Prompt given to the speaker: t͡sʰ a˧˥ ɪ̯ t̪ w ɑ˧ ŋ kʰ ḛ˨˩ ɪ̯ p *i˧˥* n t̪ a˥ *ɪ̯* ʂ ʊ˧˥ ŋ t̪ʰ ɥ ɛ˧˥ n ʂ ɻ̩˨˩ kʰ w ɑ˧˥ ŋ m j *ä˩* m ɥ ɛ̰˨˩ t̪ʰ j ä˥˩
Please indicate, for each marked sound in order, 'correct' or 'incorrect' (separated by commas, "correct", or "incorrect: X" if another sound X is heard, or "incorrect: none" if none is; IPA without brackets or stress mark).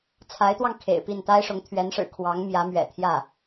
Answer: incorrect: i˥˩, correct, incorrect: ä˧˥